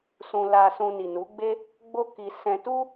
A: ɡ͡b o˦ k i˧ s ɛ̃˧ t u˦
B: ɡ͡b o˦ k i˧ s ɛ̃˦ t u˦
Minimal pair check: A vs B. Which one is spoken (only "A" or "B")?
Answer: A